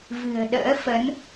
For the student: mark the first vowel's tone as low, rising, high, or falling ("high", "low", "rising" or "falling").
low